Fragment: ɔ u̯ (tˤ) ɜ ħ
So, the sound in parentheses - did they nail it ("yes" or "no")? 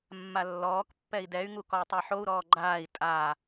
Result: yes